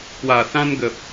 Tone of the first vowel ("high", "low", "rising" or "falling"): low